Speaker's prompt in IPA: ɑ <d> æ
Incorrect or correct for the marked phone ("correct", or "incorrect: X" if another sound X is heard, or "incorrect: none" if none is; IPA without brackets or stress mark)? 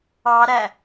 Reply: incorrect: ɾ